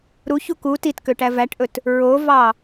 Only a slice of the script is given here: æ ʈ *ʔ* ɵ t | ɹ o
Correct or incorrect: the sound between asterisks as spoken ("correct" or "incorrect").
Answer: correct